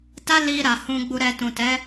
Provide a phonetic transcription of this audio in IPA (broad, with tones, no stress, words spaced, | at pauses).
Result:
ta˦li˧ ɾa˨ hũ˧ɡ͡bu˧ɾɛ˧ tũ˨tɛ˨˦